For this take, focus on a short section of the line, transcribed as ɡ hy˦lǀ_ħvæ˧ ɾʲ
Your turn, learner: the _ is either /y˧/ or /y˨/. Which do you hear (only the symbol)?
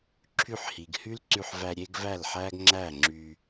y˧